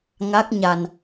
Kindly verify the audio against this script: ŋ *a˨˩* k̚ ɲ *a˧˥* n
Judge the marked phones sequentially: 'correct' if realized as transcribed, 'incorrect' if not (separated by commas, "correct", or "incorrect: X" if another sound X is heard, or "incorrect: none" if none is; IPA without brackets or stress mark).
incorrect: a˦˥, incorrect: a˧